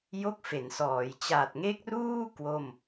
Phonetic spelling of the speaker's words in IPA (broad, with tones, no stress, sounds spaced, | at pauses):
j o˥˩ k̚ f e˩˦ n s ɔː˩˦ j t͡ɕ a˨˩ t̚ ŋ e˦˥ k̚ r uː˥˩ k w o˥˩ m